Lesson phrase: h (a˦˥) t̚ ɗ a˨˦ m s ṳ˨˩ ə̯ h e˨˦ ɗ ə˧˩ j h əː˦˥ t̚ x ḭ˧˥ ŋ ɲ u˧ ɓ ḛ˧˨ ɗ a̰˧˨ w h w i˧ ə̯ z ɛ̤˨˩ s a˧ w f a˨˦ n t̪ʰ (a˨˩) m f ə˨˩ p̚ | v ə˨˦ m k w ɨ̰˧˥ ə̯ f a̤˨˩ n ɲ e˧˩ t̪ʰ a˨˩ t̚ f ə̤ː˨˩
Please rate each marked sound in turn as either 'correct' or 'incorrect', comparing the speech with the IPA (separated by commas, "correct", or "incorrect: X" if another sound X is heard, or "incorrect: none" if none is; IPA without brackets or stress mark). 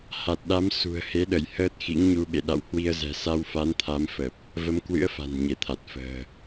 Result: incorrect: a˨˩, incorrect: a˨˦